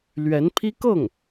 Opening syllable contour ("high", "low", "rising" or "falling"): rising